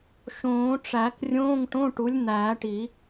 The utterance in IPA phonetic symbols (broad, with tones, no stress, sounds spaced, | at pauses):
ʃ õː˨˩˦ ʈ͡ʂ æ˨˩˦ k rʲ õː˧˥˧ ŋ ʈ õ˧˥˧ ʈ u˩˥ lʲ n̪ æː˨˩˦ ʈ i˨˩˦